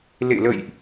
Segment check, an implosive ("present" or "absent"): absent